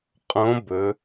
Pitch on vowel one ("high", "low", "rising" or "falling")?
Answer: rising